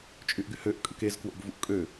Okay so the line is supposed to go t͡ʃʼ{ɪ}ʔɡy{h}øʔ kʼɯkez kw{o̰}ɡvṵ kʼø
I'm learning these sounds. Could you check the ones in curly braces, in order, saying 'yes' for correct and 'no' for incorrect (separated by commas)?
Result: no, yes, yes